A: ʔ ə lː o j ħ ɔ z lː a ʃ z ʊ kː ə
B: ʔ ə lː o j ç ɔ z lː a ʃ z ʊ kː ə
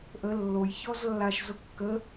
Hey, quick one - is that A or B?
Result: B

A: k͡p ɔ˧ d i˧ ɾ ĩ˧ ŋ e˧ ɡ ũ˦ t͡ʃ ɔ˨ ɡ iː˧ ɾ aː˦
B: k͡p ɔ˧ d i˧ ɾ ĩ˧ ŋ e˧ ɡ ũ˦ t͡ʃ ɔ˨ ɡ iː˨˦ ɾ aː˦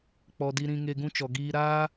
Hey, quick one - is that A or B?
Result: A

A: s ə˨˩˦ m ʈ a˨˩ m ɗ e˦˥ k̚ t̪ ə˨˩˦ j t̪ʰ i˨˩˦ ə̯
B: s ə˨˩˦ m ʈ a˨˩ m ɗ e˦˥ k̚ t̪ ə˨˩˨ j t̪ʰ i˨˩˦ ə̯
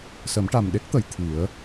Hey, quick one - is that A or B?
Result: B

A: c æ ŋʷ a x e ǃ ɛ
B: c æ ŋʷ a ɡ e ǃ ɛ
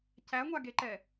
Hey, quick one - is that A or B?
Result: B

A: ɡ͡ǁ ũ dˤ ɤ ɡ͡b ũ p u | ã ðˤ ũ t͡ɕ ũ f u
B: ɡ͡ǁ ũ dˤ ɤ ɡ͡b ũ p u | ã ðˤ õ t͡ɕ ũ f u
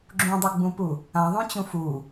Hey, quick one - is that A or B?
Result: A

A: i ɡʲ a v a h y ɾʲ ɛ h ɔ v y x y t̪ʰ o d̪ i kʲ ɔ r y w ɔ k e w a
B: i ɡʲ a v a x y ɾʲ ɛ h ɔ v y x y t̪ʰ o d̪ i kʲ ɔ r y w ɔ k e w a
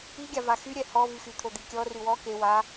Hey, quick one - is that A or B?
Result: B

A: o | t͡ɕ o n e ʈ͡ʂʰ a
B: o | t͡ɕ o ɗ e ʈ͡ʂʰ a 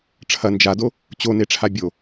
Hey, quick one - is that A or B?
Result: A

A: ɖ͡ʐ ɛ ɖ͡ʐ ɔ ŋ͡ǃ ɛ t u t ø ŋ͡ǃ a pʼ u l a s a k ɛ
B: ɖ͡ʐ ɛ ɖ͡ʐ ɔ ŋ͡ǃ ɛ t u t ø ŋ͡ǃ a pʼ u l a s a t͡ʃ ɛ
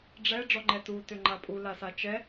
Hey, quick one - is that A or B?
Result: B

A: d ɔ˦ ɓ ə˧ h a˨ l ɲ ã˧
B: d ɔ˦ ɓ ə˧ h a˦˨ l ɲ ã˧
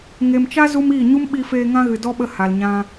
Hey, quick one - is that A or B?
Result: A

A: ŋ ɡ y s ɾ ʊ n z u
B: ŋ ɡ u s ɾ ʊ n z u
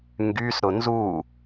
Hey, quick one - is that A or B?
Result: A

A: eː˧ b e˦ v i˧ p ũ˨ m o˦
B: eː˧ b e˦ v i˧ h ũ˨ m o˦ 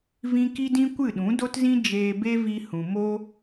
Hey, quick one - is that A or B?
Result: B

